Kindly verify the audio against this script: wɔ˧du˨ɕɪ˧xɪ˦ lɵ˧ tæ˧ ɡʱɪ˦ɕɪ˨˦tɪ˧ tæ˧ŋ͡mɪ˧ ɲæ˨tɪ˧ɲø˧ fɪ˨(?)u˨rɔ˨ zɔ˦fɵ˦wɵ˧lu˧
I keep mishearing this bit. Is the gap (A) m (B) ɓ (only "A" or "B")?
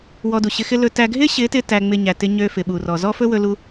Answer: B